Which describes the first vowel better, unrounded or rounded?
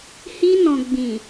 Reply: unrounded